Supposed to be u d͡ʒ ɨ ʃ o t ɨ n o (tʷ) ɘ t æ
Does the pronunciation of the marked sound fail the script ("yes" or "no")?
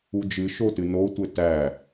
no